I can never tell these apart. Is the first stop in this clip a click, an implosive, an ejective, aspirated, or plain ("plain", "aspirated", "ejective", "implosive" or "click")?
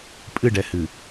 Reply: ejective